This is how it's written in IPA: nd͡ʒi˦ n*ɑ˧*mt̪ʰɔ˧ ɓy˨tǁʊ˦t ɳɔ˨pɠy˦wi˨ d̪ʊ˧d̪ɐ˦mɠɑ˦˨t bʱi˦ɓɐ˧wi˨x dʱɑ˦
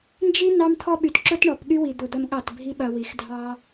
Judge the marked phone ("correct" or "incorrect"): correct